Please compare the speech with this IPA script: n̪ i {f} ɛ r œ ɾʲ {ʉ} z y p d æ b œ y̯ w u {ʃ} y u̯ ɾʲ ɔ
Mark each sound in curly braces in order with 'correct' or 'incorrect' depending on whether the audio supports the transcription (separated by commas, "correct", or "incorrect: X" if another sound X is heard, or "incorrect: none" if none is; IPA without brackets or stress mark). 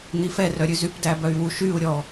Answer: correct, correct, correct